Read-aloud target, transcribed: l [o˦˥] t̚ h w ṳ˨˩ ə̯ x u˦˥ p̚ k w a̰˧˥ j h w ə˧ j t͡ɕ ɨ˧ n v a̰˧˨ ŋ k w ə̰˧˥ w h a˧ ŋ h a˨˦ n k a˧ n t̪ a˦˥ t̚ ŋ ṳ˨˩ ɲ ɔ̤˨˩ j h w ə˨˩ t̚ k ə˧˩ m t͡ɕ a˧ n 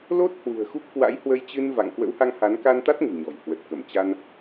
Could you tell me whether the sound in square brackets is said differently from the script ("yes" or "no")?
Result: no